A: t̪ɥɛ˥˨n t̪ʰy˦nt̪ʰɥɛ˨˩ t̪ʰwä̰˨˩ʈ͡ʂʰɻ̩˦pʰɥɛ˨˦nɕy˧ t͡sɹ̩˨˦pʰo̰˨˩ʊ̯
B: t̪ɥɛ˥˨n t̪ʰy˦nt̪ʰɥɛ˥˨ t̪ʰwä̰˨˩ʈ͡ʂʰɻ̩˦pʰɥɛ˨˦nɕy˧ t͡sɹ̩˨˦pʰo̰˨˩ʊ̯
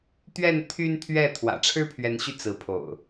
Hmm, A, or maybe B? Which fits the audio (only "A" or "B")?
B